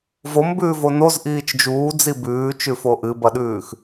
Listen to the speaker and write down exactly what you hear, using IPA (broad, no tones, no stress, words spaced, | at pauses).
vombʉːvo nozʔiːt͡ʃ d͡ʒuːd͡zi bʉːt͡ʃʉfo ʔɨbɐɗʉːx